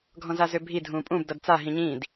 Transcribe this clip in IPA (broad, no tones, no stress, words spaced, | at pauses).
ɡʱɔ̃zazøbʱi dʱũpʼũb dʌdt͡sa ɦĩɲĩd